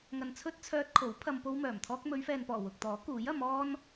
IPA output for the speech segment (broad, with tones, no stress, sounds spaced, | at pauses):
ŋ ɐ˨ n t͡sʰ ɵ˥ t̚ t͡sʰ œː˧ t̚ kʰ o˨˥ w pʰ ɐ˧ m p o˥ w m œː˨˩ m t̪ʰ ɔː˥ k̚ m ɵ˨˧ ɥ f ɛː˨ n p ɔː˨˩ w ʊ˨ k̚ t̪ ɔː˨˥ k uː˨˥ j ɐ˨˧ m ɔː˥ n